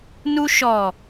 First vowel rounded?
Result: yes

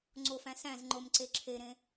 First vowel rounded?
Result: yes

